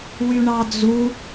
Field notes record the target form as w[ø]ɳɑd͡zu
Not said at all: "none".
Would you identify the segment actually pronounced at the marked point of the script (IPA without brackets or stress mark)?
y